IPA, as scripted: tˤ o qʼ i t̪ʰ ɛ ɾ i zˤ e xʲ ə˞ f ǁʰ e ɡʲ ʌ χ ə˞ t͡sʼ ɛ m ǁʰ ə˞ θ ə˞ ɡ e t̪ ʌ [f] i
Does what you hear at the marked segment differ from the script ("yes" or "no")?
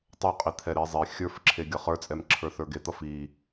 no